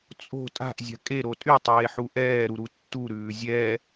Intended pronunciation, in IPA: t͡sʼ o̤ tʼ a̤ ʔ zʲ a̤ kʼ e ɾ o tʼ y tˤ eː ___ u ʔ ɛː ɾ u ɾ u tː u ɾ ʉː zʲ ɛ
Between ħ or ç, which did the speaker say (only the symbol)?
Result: ħ